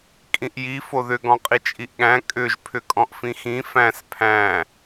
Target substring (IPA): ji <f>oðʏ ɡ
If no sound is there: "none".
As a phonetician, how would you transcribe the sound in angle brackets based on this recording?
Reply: f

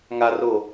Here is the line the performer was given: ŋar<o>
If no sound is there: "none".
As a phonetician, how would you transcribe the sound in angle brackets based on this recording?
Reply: o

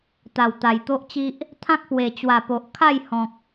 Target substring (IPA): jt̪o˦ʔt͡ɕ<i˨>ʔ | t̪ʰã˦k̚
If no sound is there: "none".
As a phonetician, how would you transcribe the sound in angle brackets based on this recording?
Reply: i˦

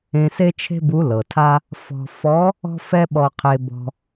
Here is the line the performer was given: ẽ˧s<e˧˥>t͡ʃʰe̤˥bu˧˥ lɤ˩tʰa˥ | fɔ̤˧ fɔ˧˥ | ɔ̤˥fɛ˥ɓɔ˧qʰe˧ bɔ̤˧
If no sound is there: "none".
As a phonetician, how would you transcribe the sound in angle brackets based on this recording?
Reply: e˥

